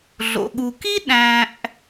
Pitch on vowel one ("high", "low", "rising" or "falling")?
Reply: low